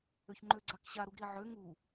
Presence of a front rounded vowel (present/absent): present